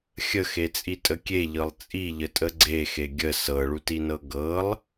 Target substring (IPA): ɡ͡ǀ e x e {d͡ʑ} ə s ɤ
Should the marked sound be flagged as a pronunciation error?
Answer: yes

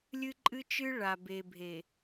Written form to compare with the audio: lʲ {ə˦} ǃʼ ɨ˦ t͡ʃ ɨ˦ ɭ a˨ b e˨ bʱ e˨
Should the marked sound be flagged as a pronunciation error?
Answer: yes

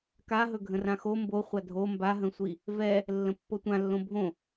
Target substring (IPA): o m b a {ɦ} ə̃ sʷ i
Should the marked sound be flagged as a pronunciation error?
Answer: no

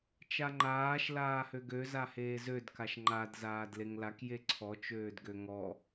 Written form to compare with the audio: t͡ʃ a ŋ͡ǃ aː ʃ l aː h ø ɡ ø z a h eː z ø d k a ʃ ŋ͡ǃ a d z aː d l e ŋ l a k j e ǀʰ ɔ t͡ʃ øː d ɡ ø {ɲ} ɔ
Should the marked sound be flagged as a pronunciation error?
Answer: yes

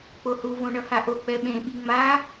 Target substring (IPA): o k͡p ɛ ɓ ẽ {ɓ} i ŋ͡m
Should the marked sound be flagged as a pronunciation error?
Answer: no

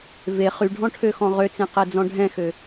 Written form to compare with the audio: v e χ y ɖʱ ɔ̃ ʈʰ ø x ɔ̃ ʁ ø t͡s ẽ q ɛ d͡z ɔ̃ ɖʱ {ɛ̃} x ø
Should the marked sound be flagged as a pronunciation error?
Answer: no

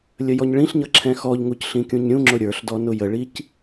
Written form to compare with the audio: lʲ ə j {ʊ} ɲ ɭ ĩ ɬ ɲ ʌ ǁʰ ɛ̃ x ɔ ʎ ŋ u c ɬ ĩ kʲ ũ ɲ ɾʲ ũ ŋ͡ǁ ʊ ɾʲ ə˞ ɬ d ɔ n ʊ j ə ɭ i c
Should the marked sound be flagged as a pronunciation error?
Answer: yes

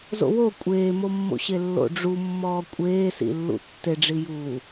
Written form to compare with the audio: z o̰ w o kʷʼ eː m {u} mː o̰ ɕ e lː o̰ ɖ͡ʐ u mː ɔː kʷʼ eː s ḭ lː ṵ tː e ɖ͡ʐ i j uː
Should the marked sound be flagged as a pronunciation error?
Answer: yes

